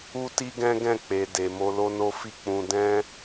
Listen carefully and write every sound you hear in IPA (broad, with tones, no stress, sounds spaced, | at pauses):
u˦ t i˦ ɡ ɛ̃˦ ɡ ɛ̃˦˨ k͡p e˨ d e˨ m o˧ l o˦ n o˦ f i˦˨ k͡p ũ˧ d ɛ̃˦